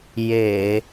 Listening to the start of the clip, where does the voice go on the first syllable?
low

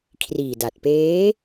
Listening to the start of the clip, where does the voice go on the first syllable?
low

